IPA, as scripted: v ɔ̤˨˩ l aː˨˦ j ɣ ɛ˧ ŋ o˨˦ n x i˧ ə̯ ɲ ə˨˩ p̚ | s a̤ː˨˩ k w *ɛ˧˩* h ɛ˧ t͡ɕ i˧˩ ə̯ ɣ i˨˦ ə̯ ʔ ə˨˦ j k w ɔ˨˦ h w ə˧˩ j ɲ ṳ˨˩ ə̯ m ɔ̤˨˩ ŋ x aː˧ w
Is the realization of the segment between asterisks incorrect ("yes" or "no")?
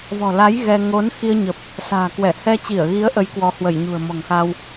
no